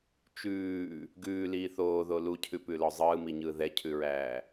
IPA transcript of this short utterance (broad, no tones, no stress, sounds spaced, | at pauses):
t͡ʃ ʉː | ɡ ʉː l iː θ oː ð o l u cʰ ʉ p ʉ l ɔ zˤ ɯː m i ɲ ɯː ð ɛ cʰ ʉ ɹ æː